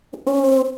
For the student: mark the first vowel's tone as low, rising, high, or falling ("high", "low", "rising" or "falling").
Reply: low